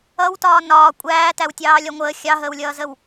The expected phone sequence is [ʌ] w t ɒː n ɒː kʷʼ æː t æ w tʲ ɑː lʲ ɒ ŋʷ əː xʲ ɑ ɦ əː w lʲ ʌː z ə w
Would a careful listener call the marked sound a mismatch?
no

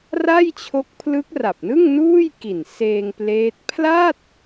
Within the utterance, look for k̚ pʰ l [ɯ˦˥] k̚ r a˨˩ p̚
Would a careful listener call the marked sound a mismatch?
no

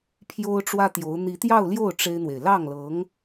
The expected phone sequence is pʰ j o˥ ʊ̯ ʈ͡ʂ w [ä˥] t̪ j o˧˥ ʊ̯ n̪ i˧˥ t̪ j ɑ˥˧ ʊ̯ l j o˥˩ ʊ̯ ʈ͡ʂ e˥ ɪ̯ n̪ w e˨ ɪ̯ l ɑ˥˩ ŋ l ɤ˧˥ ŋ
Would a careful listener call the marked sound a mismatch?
no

